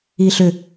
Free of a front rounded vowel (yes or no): no